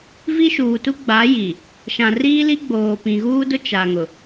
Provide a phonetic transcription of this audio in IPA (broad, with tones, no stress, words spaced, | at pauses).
vi˦ʃuː˨tu˦ ɡ͡ba˨˦ji˨ | ʃã˨riː˦li˦ɡ͡boː˨ pĩ˨ɣuː˦dʊ˦ t͡ʃa˨ŋʊ˨